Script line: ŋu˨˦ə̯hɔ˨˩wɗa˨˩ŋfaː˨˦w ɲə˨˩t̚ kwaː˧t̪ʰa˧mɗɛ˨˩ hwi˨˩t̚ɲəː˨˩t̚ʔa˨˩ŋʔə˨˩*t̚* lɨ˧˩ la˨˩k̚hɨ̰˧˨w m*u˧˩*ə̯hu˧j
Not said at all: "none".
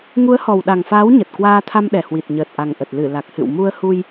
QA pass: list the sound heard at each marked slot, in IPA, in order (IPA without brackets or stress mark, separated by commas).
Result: t̚, u˧